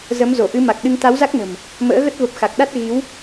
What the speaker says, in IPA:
z ə˨˦ m z o˧˩ ʔ ɨ˨˦ m a˨˩ k̚ ɗ ɨ˧ ŋ t̪ a˨˦ w z a˦˥ k̚ n ə̤˨˩ m | m ə̰ː˧˥ ɣ ə˦˥ t̚ v ə˨˩ p̚ x a˨˩ k̚ ɗ a˦˥ t̚ ɣ i˨˦ w

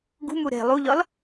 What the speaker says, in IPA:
ɡ ṳ m u ɾ e̤ lˠ u ʎ ɒ l

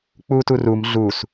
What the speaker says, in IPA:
k͡p u t u r u m ɮ u s

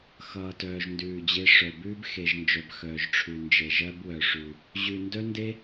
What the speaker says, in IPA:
x ʌː˨ t œː˨ ʒ n d ʉː˨ d͡ʑ e˦ ʂ œ˨ b ʉː˦ b x e˨ ʒ n d͡ʒ œ˨ b x œː˨ ʒ ʈ͡ʂʰ ʉ˨ n d͡ʒ e˨ ʒ ɜ˦ b w œ˨ ʂ ʉ˨ | ʑ ʉ˨ n d œ˦ n d e˦

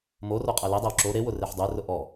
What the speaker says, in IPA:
m o r o qʼ æ l e dˤ æ w ǁ o ɾ e w ʊ r e ħ dˤ ʊ ɪ̯ r ʊ ʔ ɔ

